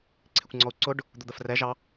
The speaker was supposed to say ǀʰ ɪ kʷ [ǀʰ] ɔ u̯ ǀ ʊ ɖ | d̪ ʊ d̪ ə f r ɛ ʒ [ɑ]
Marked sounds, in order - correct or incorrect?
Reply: incorrect: ŋ͡ǀ, correct

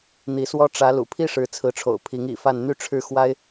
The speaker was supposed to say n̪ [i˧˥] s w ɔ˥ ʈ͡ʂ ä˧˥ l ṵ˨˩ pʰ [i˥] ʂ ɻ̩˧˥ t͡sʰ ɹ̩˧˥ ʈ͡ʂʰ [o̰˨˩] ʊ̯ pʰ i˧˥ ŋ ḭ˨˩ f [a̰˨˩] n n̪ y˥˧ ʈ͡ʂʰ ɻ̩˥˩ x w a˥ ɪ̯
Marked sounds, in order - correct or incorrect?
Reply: correct, correct, correct, incorrect: a˥˧

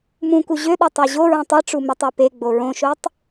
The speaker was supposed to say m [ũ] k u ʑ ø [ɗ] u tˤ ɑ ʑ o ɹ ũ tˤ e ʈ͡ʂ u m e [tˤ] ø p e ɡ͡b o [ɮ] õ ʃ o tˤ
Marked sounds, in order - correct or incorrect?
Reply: correct, correct, correct, incorrect: ɹ

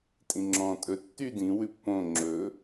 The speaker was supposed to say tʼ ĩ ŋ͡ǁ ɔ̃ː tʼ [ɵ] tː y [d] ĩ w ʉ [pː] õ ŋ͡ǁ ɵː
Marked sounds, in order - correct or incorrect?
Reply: correct, correct, correct

